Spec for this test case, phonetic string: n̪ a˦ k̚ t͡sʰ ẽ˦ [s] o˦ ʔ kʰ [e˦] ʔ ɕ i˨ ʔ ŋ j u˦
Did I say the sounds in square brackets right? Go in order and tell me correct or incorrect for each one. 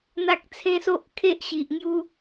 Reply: correct, correct

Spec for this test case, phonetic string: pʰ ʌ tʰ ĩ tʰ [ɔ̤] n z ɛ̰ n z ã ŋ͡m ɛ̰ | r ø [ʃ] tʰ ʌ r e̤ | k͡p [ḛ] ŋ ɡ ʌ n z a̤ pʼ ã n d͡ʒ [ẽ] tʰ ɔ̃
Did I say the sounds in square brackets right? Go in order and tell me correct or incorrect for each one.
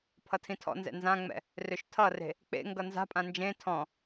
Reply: incorrect, correct, correct, correct

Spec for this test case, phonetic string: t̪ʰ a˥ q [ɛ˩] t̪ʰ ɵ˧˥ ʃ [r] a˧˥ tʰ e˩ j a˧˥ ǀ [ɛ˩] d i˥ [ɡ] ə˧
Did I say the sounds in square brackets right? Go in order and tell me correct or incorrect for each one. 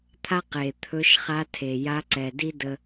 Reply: incorrect, incorrect, correct, incorrect

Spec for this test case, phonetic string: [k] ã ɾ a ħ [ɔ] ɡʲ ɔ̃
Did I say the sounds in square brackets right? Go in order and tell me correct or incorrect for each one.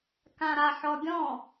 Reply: correct, correct

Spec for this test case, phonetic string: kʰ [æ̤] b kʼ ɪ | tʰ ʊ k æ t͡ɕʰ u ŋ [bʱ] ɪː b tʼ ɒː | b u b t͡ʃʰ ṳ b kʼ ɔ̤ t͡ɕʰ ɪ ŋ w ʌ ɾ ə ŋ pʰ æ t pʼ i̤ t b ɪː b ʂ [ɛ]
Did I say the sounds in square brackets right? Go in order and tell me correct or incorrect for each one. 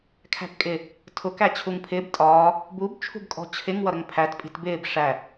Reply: correct, incorrect, incorrect

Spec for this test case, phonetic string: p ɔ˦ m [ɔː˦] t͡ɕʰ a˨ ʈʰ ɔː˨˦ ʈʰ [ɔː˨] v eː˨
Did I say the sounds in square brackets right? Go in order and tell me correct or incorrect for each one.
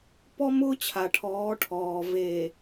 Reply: incorrect, correct

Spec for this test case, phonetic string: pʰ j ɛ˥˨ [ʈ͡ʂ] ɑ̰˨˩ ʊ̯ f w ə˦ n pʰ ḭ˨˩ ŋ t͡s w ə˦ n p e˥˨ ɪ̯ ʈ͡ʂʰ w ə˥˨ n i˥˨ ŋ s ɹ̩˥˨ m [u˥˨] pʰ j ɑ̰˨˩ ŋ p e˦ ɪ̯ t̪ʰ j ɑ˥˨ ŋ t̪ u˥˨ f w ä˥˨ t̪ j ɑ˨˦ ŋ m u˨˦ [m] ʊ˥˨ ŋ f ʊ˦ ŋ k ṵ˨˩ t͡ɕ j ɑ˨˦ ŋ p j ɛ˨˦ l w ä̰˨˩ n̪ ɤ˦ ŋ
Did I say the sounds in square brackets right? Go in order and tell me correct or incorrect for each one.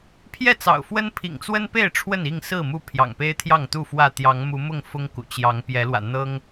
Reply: incorrect, correct, correct

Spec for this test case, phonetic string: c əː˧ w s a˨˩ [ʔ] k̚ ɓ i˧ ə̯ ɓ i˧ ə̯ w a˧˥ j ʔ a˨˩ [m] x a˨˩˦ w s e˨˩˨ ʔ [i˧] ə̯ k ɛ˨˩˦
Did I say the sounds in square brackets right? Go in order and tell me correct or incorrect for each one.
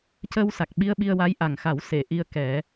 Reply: incorrect, incorrect, correct

